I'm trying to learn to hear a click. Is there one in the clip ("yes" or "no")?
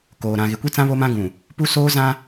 no